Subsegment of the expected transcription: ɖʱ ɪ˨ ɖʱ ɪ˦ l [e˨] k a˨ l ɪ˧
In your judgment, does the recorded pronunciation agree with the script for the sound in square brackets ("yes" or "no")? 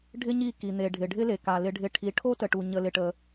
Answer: yes